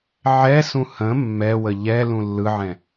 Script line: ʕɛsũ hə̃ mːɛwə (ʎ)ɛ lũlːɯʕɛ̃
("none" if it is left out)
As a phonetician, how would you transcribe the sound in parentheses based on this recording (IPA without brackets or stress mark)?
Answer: ʎ